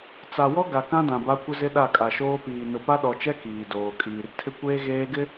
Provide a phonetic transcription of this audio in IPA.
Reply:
t͡s a˨ w ɔ˦ ɡ a˨ k ã˦ d ã˨ b a˦ kʷ ɪ˦ z ɪ˦ ɗ a˦˨ kʼ a˨ ʃ oː˦ p iː˨ n ʊ˨ p a˦ ɗ ɔ˨ t͡ʃ ɛ˦ k iː˨ d oː˨ kʼ iː˨ r tʰ ɪ˦ kʷ eː˦ ɣ eː˦ ɡ ɪ˦

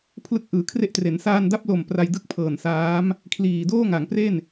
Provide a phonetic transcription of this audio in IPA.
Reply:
pʰ l ɯ˥˩ k̚ ʔ ɯː˨˩ kʰ r e˥˩ ʔ t r e˩˦ n s aː˧ n d a˦˥ p̚ l o˨˩ m p r a˧ j d ɯ˦˥ k̚ pʰ ɤː˨˩ n s aː˦˥ m | kʰ l iː˨˩ d oː˥˩ ŋ a˩˦ ŋ p r e˥˩ n

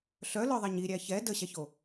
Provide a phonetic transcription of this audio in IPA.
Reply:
ɬ œ l œ ðˤ ɛ ɲ i ɾʲ æ ç ɛ d ə ɕ æ ç o

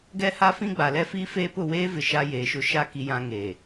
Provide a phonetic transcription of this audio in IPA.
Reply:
ɡ ɛ˦ h a˦ f ĩ˦ ɡ͡b a˨ l ɛ˦ f iː˦ f eː˦ p ʊ˦˨ w eː˦ v ɪ˨ ʃ a˦ j eː˨ ʃ ʊ˦ ʃ a˦ k i˦ j ã˦ ŋ e˨

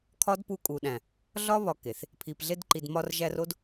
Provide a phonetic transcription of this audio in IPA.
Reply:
kʰ ɒ˦ d p u˧ kʼ u˨ ɗ æ̃˨ | ɮ ɒ˦ β ɒ˧ k e˨ θ | pʰ i˨ p ɮ e˧ d ǃ i˨ d m ɒ˧ r ʒ æ˧ r o˦ d

